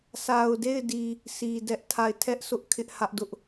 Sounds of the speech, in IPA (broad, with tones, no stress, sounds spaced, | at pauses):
sʰ a˨ ʊ̯ d e˦˨ ɪ̯ d i˨ | sʰ i˨ d ɛ˦ ʔ tʰ a˦˨ ɪ̯ tʰ ɛ˦ ʔ s ʊ˦ ʔ kʰ ɪ˦ ʔ h ä˦ ʔ d ʊ˦ ʔ